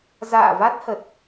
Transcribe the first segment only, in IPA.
z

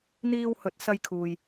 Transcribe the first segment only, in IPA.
n̪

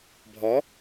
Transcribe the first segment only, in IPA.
bʱ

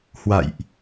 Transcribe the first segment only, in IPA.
h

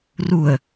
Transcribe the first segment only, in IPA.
r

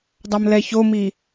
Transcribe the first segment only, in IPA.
dˤ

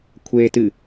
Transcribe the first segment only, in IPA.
kʷʰ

